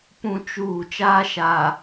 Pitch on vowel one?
high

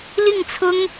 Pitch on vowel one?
falling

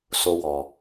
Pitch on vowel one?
high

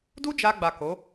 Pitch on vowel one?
high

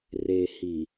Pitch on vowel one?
low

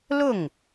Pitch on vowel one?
falling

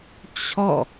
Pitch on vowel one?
falling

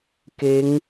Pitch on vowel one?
rising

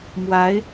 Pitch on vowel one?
rising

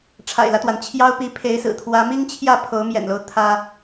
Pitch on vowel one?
low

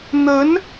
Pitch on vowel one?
rising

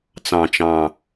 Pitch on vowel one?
low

